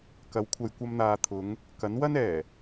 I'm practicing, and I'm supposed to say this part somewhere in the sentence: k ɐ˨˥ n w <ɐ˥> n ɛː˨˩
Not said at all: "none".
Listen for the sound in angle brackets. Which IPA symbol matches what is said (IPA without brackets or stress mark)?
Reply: ɐ˥